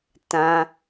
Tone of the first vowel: high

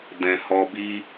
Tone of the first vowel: low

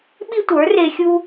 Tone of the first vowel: high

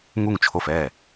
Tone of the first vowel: falling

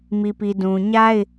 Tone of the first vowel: low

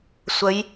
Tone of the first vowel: rising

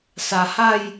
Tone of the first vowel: low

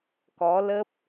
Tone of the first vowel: rising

